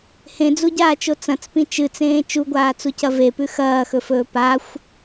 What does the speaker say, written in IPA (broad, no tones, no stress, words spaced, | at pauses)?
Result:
hẽd͡zuɟaːt͡ʃo t͡sɐ̃t͡spĩ t͡ʃɨt͡sẽː t͡ʃuɡʷaːt͡sucɐ vepʉ xɐːxɵfɵː paxʷ